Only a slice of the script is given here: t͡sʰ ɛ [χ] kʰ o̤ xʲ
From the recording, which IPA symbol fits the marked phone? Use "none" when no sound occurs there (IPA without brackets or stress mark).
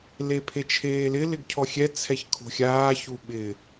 ç